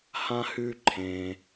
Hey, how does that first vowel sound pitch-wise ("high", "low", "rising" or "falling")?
high